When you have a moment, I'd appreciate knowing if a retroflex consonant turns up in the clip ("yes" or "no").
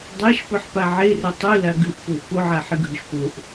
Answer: no